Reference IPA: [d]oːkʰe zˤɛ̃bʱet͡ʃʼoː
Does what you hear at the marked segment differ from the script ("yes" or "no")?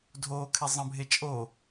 yes